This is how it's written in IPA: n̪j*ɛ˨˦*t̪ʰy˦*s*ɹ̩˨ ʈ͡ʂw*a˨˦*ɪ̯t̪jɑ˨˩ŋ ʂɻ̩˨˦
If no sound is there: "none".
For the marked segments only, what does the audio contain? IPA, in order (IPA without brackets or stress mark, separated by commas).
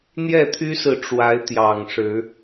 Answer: ɛ˥˨, s, a˨˦